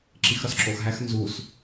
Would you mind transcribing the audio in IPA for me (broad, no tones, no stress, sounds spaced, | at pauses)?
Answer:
ǁ i x ɾ ɒ s ǁ o x ɦ æ x n z u s